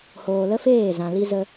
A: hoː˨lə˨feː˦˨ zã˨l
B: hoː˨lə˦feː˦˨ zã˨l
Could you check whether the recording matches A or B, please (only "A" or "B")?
B